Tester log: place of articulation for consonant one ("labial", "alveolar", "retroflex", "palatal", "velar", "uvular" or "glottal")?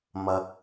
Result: labial